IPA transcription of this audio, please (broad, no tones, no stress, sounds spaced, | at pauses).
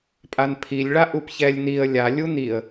pʼ a n pʰ i lʲ ɭ a ʔ u p ç ɛ lʲ n i ə̯ lʲ a lʲ u n i ə̯